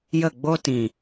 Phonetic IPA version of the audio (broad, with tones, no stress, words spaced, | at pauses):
jə˦˨ɡ͡bo˦ tĩ˨